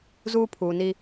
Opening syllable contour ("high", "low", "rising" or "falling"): high